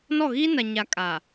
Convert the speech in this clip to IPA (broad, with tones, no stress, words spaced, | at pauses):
nɔ˦˨ɣiː˦na˨ɲa˨ kʼaː˨